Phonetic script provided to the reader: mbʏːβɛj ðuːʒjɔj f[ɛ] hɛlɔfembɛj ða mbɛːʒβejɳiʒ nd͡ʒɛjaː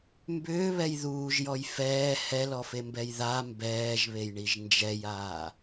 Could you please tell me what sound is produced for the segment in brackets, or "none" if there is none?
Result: ɛː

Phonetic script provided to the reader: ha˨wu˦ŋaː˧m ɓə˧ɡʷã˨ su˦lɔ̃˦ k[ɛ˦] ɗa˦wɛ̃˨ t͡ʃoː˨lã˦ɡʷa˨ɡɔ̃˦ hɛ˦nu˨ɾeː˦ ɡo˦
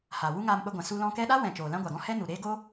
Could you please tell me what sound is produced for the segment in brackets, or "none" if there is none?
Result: ɛ˦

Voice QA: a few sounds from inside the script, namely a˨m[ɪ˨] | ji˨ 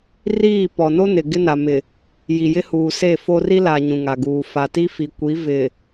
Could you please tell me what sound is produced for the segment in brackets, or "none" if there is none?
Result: ɪ˨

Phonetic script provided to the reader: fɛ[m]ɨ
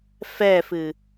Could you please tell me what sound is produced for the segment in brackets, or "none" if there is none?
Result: f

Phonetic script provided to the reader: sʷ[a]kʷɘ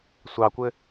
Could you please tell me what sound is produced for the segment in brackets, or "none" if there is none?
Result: ɑ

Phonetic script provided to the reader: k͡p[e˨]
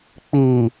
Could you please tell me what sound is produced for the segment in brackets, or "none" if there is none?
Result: i˨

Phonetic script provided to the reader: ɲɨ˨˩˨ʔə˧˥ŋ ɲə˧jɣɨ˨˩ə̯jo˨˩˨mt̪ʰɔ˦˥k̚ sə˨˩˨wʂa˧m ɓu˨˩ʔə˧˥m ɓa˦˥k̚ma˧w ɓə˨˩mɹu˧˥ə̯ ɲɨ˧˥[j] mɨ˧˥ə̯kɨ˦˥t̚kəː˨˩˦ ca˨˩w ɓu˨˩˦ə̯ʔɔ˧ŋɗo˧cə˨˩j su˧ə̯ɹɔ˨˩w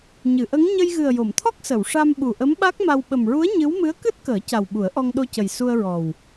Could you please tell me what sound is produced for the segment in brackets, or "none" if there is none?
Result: w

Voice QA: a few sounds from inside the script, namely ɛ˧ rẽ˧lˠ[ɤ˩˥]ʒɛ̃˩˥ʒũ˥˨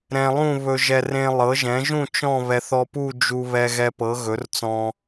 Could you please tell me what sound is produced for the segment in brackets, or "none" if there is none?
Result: ɤ˩˥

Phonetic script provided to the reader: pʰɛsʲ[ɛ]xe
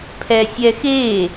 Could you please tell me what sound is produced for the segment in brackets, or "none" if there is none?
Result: ɛ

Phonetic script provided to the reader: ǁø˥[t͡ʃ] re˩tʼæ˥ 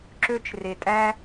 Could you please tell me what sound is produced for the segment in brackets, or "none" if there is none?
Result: t͡ʃ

